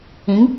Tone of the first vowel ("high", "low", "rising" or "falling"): rising